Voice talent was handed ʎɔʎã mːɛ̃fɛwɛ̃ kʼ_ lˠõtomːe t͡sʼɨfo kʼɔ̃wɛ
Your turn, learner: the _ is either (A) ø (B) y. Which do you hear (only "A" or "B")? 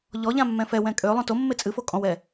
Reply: A